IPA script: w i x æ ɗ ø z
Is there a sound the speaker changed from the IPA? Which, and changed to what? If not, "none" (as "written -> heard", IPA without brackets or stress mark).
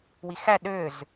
none